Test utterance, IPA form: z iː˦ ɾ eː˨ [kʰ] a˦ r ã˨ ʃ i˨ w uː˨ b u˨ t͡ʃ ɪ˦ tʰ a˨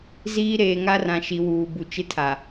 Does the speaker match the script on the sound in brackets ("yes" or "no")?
no